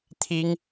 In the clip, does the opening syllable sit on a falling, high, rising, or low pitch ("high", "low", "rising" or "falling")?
high